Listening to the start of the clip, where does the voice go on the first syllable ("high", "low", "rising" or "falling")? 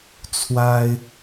high